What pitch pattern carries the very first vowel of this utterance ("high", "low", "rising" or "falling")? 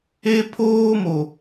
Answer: high